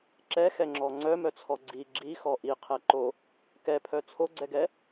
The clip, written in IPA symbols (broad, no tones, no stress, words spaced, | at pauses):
ǁɛxɛŋ͡ǁɔ ŋ͡ǀœmœt͡sʰɔ ɡ͡ǀi ɡ͡ǁixɔ ʔiqʰɛǃo | kɛpʰœ t͡sʰoɡ͡ǀɛɡɛ